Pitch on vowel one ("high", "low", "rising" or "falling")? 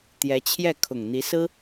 rising